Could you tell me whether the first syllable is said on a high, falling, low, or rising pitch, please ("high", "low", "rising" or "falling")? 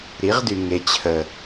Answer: rising